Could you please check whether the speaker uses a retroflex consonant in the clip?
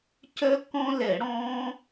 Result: yes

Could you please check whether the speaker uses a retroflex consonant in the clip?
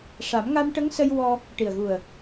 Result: yes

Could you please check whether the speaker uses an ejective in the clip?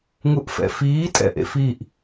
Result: yes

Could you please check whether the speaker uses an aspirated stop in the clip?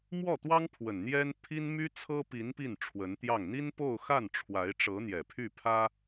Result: yes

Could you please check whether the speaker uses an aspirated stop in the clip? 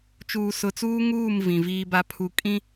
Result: yes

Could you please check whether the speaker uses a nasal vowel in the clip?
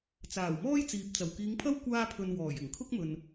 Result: no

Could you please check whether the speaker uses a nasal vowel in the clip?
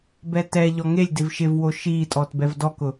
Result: no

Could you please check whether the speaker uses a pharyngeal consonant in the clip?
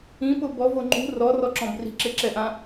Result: no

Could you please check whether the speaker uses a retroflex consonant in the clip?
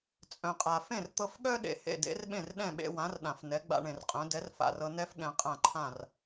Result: yes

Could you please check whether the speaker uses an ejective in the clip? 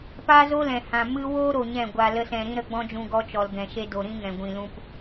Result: no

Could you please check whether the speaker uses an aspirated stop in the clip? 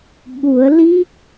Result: no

